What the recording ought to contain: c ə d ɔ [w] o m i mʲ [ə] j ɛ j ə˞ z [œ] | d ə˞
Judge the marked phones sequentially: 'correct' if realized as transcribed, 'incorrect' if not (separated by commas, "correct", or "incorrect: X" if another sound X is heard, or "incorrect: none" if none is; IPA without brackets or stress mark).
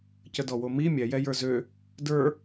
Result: correct, incorrect: ɛ, incorrect: ø